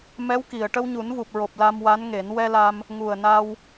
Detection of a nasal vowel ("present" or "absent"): absent